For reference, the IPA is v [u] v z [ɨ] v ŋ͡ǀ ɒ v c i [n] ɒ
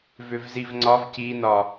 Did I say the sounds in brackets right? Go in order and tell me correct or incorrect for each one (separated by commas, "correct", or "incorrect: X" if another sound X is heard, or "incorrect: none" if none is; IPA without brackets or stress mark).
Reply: incorrect: ʏ, incorrect: i, correct